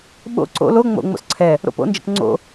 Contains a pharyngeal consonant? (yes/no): no